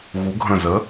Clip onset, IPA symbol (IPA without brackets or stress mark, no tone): ɣ